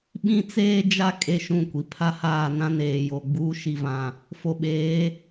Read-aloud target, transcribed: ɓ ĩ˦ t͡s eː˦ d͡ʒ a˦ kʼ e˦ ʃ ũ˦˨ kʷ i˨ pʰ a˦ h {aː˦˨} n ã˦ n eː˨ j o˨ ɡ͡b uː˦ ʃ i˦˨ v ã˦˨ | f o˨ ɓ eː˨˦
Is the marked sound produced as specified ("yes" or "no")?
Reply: yes